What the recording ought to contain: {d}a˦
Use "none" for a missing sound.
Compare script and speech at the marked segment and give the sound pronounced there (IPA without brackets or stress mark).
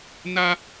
n